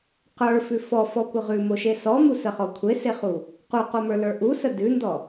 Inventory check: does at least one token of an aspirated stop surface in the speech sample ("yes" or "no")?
yes